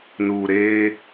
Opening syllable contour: low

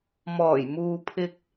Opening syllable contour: low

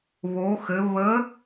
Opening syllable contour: rising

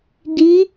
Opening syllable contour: rising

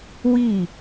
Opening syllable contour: falling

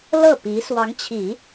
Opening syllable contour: falling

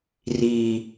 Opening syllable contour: low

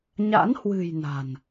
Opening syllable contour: rising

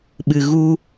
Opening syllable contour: low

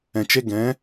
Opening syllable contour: low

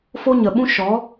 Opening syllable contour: high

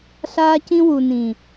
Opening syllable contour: high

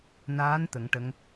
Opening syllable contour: rising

